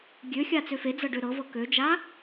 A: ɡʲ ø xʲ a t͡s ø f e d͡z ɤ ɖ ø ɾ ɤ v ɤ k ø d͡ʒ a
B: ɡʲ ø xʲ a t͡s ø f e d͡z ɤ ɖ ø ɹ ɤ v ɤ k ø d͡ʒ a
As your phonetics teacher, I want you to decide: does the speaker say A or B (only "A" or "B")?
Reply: A